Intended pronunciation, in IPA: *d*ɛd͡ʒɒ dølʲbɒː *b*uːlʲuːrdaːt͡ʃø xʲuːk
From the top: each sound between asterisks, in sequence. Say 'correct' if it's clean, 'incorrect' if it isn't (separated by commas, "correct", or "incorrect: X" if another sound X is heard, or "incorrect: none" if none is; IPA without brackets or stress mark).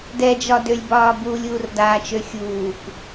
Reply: correct, correct